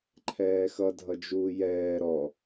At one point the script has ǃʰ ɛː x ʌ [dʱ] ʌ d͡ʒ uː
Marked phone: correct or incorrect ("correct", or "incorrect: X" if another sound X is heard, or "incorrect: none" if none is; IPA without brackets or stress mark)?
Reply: correct